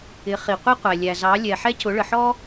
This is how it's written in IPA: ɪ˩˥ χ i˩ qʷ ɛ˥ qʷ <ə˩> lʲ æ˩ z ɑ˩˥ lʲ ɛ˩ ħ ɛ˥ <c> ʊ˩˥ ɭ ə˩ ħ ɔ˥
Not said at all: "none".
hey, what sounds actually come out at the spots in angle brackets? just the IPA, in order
æ˩, c

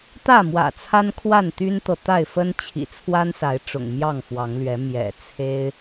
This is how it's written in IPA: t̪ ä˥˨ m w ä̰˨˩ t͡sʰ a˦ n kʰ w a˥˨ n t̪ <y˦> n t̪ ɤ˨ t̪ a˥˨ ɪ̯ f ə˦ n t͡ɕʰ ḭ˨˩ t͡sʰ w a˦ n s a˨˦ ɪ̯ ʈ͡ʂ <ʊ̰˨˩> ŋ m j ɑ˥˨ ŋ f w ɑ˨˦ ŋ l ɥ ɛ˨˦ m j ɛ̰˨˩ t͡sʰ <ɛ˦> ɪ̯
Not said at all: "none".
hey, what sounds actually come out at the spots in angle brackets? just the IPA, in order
y˦, ʊ̰˨˩, e˦

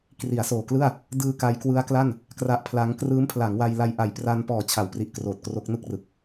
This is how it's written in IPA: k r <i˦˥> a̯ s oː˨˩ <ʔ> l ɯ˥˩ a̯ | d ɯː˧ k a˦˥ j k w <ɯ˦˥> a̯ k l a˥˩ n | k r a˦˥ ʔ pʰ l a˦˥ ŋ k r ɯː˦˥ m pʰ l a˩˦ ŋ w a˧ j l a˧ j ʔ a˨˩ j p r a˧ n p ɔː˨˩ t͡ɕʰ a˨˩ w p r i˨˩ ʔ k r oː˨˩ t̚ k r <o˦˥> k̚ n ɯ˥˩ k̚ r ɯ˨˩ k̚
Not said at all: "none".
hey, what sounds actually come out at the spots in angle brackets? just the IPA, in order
i˩˦, k, ɯ˦˥, o˦˥

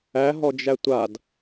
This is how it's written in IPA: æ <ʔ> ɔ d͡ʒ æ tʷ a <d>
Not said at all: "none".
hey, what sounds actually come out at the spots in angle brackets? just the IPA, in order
ɦ, d

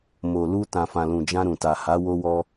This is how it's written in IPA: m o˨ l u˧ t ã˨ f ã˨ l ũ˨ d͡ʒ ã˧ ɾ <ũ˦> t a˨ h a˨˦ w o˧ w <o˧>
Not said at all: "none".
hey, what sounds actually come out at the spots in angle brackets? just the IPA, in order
ũ˨, ɔ˧

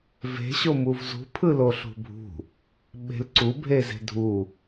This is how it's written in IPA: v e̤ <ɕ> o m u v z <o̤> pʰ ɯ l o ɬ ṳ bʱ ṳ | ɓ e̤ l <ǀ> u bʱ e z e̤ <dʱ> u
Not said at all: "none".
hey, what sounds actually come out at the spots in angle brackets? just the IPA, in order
ɕ, ṳ, ǀ, dʱ

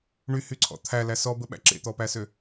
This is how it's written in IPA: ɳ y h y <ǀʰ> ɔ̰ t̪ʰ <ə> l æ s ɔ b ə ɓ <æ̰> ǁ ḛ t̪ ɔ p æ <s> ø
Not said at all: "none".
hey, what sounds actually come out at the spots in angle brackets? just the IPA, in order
ǀʰ, æ, æ̰, s

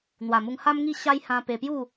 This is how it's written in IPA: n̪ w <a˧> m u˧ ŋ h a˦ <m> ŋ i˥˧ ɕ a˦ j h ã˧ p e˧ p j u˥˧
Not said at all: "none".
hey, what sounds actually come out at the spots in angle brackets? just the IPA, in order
a˨˩, m

